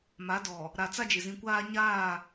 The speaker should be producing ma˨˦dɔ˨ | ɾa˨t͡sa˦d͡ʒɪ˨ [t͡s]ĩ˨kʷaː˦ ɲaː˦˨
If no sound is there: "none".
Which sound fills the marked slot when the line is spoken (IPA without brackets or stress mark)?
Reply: z